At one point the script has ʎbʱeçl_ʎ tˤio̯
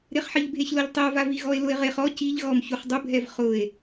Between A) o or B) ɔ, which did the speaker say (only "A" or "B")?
A